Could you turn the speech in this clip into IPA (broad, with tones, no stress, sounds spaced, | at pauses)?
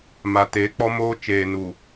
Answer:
m a˨ t eː˨˦ k͡p ɔ˦ m oː˦ t͡ʃ eː˨ n u˨